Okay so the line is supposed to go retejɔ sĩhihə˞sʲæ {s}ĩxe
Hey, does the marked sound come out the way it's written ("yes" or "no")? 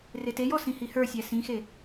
yes